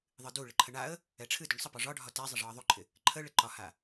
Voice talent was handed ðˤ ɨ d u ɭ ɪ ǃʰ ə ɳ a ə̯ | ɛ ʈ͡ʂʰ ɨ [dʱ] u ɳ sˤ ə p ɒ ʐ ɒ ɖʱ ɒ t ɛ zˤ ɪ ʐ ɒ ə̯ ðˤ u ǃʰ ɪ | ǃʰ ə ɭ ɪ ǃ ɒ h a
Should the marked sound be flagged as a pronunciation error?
yes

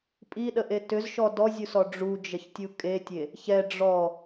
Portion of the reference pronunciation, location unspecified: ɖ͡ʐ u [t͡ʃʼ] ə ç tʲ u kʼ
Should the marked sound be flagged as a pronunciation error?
yes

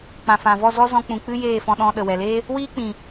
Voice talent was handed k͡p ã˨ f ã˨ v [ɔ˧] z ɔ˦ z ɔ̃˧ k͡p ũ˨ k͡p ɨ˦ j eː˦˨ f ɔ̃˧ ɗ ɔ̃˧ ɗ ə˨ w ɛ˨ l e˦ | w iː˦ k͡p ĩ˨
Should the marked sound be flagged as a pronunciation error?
yes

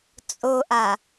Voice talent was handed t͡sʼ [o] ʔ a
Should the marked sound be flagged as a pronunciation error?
no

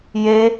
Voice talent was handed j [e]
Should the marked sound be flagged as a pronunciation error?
no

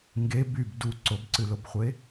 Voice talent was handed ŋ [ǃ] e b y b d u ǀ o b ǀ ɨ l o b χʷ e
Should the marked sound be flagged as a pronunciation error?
yes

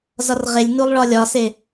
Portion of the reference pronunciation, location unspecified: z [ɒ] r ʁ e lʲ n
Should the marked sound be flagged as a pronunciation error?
no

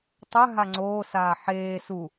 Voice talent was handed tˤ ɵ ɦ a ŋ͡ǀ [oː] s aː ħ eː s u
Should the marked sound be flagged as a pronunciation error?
no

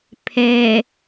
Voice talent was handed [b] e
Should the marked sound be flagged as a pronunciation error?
yes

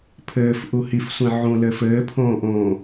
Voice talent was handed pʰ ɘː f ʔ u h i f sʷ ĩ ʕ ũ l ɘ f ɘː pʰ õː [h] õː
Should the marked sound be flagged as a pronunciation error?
yes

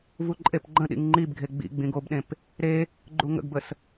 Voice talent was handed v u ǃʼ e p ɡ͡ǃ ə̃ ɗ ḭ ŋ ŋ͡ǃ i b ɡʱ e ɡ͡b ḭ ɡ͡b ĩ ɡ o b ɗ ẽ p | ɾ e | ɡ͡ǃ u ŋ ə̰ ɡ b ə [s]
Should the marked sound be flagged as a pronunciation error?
no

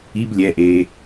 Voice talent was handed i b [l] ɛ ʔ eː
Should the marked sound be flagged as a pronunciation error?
yes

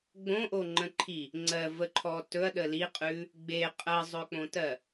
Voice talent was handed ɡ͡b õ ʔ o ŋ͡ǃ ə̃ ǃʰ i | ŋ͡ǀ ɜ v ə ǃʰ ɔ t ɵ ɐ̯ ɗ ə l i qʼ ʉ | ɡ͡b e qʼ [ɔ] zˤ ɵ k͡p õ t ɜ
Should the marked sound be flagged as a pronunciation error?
yes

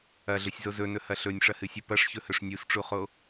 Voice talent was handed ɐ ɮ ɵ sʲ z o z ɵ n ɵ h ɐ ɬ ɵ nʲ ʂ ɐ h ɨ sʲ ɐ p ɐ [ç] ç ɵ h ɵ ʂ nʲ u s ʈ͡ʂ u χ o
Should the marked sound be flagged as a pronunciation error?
yes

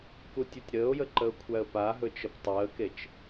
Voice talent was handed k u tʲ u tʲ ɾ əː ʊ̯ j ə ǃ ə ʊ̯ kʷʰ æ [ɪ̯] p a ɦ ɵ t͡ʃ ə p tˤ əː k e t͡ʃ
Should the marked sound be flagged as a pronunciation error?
yes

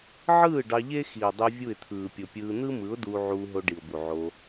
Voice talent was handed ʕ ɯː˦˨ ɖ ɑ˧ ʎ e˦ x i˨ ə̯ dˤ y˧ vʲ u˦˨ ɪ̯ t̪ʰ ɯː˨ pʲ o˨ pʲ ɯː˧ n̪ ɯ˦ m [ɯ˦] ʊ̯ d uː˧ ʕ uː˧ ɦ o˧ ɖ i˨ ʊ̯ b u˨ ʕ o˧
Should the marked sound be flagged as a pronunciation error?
yes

